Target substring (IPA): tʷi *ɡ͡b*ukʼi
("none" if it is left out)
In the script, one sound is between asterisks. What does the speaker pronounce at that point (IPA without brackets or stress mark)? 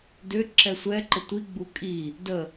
ɡ͡b